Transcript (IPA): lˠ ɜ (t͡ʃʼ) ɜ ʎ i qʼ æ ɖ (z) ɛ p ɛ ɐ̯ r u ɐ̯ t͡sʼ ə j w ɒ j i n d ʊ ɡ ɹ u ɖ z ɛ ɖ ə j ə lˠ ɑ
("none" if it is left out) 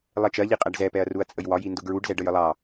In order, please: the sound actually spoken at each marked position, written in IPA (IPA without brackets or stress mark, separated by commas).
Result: t͡ʃ, z